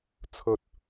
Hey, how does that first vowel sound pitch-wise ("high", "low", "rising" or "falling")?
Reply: low